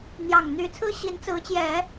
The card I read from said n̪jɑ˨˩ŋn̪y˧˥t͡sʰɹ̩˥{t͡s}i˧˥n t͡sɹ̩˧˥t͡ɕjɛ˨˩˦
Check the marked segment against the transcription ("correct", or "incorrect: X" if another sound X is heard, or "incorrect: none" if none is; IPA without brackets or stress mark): incorrect: ɕ